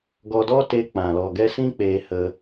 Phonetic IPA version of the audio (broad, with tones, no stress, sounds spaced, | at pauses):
ɡ ɔ˧ d ɔ˦ t e˧ k͡p ã˨ l ɔ˨ ɡ ɛ˧ s ĩ˦ k͡p eː˧ h ə˧